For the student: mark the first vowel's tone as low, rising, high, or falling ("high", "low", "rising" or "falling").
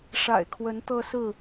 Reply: low